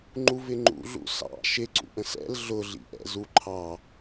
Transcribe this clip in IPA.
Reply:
ŋ͡ǃ u v ɪ ŋ͡ǃ ṵ ɮ ṵ s ɑ̰ ʃ ɪ ǀ ṵ ʔ ə̃ s ɛ̰ l ɮ ʊ ɮ ḭ ʔ ɛ̰ z u ǃʰ ɑ

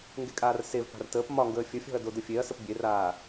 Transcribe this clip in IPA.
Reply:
ŋ ɡ e kʼ aː r s e v p a̤ r t əː p m ɒ ŋ ɡ əː fʲ ə fʲ ɔ̤ ɐ̯ d o d ə fʲ e ɐ̯ s ə p bʲ e r aː

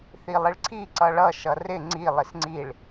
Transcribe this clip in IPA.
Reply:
θ i lˠ ɪ ɭ ǀʰ i ǀ ʌ ɭ ʌ ʃ ʌ r ɪ ŋ͡ǀ i lˠ ɪ s ŋ͡ǀ i ɭ

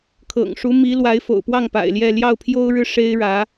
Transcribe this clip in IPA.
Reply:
kʰ ɤ̰˨˩ ŋ ʂ u˧˥ m i˧˥ l w a˧˥ ɪ̯ f o̰˨˩ ʊ̯ p w ɑ˥˩ ŋ p a̰˨˩ ɪ̯ l j ɛ˥˧ l j ɑ˥˩ ʊ̯ pʰ j o˥ ʊ̯ ɻ ɻ̩˥˩ ʂ e˥ ɪ̯ ɻ ä˧˥

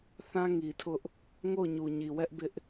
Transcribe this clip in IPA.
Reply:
θ ã˦ ŋ i˨ tʰ ʊ˦ ʔ | ŋ o˦˨ ʊ̯ ɲ u˨ ɲ i˨ w ɛ˦ ʔ b ɪ˦ ʔ

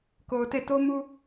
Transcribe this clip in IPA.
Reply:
k o˨ ʊ̯ t e˦˨ t o˦ m u˦

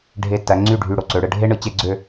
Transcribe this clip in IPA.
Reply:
ɖʱ e˧˩ tː æ˩˧ ŋ͡ǀ y˧˩ ɖʱ y˧˩ ɽ o˧ ǀ ø˩˧ ɽ ɯ˧ ɖʱ e˥ ɳ ɯ˩˧ t͡ɕ e˥˧ ɡ͡ǀ ø˥˧

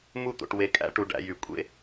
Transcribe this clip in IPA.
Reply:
m u˦˨ t̪ o̰˨ ʈ w e˨ kʼ æ̰˦ ʈ u˨ ɖ æ̰˦ j y˨ kʷʼ ḛ˦

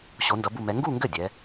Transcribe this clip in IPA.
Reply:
ɕ o˧˥ n d ʌ˧˥ b u˥˧ m ɛ˧˥ ŋ ɡ u˥˧ ŋ ɡ ɘ˥˩ dʲ ɛ˧˥

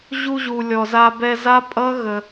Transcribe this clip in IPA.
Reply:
ʑ u˧ ʑ u˨ lʲ ɔ˨ z a˧ b ɛ˧ z a˦ pʼ ʌ˦ ɣ ə˧

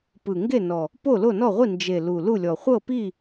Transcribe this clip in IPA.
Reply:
p ɯ˨˩ ŋ ɡ e˥˨ n ɔ˨˩ | p o˥˨ l o˥˨ n ɔ˥˨ ʁʷ i˥˨ n d͡ʒ e˨˩ l u˨˩ l u˥˨ lʲ ɔ˨˩ χʷ ɤ˥˨ p i˥˨

